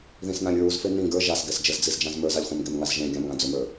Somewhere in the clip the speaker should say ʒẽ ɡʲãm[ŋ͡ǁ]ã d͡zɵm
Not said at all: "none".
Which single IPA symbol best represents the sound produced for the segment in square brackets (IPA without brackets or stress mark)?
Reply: ŋ